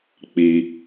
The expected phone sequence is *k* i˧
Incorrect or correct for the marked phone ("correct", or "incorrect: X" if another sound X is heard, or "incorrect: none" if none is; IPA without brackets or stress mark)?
incorrect: k͡p